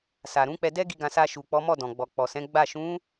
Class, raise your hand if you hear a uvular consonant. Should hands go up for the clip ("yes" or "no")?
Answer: no